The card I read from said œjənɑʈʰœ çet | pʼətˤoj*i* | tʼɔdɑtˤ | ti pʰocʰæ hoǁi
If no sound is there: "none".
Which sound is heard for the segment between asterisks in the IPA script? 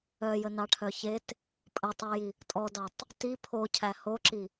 i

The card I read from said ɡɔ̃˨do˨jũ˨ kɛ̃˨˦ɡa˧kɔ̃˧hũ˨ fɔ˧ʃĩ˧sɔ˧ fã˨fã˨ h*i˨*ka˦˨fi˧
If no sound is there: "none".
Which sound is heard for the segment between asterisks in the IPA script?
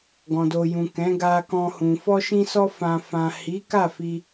i˨˦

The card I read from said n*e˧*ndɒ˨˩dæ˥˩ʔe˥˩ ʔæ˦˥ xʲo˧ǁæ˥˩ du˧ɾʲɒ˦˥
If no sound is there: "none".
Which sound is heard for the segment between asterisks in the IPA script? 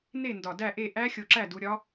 e˥˩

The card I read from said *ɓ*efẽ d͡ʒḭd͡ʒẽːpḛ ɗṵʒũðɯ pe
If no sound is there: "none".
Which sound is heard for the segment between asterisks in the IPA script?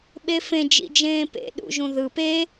ɓ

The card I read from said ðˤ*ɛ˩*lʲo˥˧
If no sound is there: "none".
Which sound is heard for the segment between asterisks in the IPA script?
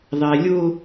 ɛ˩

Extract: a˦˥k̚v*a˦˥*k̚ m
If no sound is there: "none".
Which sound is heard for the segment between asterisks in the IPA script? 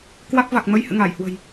a˨˩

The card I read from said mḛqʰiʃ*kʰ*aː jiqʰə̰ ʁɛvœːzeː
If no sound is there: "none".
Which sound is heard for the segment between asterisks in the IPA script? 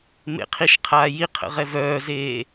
qʰ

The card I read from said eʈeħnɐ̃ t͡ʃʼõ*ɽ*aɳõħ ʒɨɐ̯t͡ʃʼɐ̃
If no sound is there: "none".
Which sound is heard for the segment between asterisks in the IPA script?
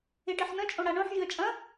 ɽ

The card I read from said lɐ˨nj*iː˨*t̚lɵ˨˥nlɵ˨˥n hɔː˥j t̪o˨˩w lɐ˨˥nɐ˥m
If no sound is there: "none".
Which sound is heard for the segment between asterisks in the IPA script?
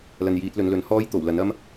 iː˨˥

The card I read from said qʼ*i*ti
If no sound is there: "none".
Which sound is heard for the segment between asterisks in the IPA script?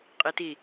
i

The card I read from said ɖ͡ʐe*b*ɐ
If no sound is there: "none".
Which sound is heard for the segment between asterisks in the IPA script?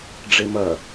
m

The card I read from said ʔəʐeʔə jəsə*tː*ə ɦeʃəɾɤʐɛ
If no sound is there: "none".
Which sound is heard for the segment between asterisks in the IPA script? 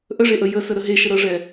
ɾ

